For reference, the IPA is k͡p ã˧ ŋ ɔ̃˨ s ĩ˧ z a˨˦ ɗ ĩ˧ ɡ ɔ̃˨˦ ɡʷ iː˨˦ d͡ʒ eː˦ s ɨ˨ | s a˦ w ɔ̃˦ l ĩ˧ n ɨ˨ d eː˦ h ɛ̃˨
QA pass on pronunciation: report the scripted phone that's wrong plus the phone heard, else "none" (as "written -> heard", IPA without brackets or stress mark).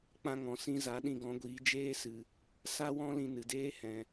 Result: none